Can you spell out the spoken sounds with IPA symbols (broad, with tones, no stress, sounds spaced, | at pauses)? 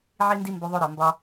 ʕ i˦ n d i˦ m b ɵ˧ ðˤ o˦ ɾ ɒ˨ m b ɒ˦